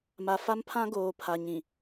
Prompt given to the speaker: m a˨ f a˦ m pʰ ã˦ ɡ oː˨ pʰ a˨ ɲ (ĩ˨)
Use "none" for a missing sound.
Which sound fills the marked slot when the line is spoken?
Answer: ĩ˨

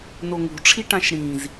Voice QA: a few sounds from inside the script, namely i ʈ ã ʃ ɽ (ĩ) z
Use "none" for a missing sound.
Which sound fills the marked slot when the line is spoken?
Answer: ĩ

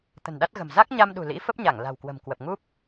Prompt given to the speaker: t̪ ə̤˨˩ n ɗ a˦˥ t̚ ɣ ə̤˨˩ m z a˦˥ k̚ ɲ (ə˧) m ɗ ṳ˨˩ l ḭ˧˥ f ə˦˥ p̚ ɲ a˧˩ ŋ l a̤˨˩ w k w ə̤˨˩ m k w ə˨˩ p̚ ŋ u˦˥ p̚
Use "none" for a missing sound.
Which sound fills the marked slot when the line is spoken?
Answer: a˧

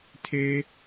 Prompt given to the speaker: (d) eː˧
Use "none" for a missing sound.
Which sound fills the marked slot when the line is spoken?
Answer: tʰ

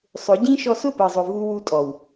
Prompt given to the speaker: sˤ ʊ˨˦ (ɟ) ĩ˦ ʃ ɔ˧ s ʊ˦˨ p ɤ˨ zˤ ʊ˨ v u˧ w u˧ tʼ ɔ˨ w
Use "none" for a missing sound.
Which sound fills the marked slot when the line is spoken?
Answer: ɟ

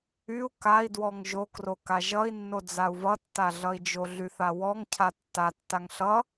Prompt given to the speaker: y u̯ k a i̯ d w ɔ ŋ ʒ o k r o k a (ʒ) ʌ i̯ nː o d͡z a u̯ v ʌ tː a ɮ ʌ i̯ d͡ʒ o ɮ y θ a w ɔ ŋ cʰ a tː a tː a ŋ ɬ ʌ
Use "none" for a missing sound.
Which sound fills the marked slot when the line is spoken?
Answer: ʒ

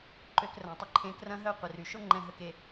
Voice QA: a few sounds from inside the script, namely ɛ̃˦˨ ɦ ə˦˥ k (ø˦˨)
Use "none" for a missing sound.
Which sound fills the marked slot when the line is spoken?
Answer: e˦˨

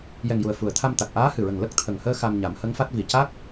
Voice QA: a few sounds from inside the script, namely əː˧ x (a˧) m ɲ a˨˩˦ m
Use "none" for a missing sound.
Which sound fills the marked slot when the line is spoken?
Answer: a˧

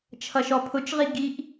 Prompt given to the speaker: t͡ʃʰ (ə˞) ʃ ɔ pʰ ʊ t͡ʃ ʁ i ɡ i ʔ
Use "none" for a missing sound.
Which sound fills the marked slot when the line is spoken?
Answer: ʌ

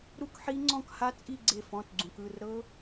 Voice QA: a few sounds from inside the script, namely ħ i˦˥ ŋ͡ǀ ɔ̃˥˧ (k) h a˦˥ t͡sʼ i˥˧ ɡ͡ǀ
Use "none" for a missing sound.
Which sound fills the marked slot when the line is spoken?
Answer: k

